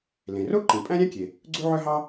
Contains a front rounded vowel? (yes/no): yes